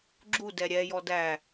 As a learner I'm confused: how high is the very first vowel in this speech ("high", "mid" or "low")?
high